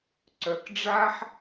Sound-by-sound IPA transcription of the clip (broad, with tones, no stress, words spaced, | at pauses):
ǀœ˩kɖ͡ʐa˥ħ